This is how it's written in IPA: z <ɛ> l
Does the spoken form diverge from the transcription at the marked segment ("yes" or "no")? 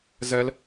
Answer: no